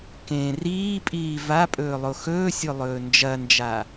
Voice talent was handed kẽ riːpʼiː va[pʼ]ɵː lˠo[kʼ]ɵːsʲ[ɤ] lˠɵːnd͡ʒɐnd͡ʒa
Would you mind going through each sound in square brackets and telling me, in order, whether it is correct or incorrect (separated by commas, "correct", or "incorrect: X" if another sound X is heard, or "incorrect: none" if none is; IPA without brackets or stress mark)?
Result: correct, incorrect: x, incorrect: o